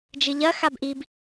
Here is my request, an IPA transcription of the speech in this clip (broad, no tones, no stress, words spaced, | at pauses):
d͡ʒɨʎɐ xabʔib